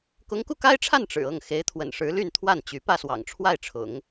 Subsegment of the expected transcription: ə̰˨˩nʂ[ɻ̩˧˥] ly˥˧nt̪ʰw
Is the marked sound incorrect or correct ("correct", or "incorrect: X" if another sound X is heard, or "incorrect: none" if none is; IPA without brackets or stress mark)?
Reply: correct